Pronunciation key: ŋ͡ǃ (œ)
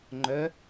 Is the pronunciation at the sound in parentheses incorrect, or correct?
correct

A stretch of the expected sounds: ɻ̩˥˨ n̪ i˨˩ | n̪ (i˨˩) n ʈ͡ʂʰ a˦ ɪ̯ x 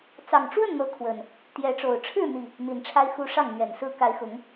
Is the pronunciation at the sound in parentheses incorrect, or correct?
correct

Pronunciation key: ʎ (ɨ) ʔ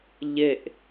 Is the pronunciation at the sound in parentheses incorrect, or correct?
incorrect: e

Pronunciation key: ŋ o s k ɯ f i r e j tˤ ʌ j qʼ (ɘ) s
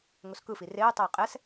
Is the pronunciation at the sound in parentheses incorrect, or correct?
incorrect: ɛ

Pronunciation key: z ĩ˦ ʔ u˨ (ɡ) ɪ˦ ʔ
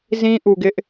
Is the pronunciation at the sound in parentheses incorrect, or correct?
correct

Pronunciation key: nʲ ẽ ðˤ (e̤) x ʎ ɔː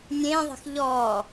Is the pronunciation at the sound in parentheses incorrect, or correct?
correct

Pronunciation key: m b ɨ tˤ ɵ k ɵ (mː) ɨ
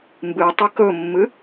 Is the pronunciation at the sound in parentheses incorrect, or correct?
correct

